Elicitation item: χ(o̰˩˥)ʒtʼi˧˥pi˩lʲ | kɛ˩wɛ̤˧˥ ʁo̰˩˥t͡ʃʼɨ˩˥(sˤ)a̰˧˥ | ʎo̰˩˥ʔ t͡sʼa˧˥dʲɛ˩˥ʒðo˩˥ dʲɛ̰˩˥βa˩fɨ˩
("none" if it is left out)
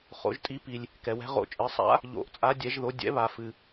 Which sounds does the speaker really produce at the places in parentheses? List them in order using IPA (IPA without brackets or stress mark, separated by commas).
o̰˩˥, sˤ